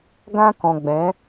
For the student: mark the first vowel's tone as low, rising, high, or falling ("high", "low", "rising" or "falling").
high